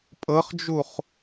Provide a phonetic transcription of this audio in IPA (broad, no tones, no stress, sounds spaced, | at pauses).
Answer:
pʼ ɤ χ d͡ʒ u χ